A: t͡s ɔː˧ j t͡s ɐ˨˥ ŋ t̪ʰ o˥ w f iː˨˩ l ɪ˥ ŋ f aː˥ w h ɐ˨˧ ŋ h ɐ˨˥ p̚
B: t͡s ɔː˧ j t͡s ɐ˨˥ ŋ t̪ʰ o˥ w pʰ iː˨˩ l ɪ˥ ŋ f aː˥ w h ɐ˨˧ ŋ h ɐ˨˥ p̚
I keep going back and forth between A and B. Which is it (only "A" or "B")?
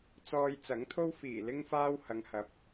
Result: A